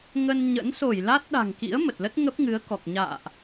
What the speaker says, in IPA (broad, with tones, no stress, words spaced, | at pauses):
ŋə˧n ɲə̰˧˥n so˧˩jla˦˥t̚ ɗa̤˨˩ŋkḭ˧˥ə̯ mə˨˩t̚lə˦˥t̚ ŋə˦˥p̚ŋɨ˨˦ə̯kɔ˨˩k̚ ɲa̰ː˧˨ʔ